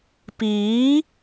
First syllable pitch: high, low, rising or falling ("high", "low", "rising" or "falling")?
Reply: rising